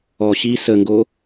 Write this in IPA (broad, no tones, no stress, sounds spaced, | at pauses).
ɔ ɕ i s ə ŋ ɡ o